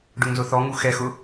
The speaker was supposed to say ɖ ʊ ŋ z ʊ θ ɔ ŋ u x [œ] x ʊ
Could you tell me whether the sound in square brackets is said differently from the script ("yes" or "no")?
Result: yes